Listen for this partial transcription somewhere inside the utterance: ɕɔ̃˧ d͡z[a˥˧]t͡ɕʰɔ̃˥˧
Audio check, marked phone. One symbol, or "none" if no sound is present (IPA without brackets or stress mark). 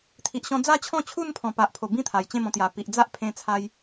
a˥˧